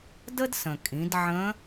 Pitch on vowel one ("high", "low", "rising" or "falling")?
high